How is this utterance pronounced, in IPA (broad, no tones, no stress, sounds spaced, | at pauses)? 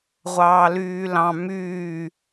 ʁʷ ɑː l yː l ɑ̃ m yː